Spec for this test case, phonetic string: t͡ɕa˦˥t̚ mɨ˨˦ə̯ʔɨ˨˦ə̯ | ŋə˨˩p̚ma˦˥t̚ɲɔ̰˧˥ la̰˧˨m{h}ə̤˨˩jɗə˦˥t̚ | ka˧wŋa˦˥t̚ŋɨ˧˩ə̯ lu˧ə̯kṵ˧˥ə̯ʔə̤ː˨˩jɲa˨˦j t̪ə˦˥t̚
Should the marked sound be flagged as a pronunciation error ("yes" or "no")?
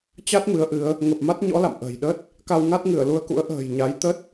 yes